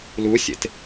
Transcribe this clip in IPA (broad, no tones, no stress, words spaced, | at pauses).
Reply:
lusʲḛt